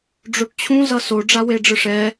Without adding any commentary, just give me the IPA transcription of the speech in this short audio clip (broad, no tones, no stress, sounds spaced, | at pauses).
ɖ͡ʐ o ʈ t͡ɕʰ ũ z ʌ s o ɖ͡ʐ a w e ɖ͡ʐ ɯ ʂ ɛ